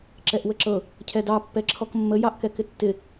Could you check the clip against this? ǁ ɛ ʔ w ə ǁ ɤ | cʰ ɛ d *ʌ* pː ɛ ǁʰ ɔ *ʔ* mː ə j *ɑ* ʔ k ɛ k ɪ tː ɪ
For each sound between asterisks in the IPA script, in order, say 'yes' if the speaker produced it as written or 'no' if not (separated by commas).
no, no, yes